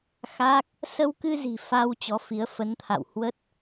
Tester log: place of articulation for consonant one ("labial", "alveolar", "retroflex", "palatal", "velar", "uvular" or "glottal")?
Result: velar